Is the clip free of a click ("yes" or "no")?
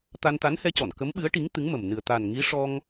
yes